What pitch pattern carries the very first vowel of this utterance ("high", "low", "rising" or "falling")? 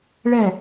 falling